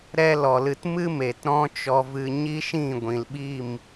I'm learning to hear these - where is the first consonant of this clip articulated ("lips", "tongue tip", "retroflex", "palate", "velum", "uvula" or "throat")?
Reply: tongue tip